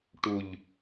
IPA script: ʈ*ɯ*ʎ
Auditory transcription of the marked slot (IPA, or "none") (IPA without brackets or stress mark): u